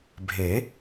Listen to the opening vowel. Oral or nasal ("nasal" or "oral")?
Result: oral